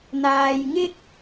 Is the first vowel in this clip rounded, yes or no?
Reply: no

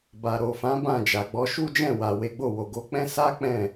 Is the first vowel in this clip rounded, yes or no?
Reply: no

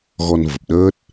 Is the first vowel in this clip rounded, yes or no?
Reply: yes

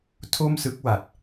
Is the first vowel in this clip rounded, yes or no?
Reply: yes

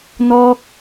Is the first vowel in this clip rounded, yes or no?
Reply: yes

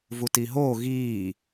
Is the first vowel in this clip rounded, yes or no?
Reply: yes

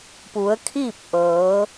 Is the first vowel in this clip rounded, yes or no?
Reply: yes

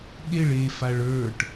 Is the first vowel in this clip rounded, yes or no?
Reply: no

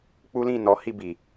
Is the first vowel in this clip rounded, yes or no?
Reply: yes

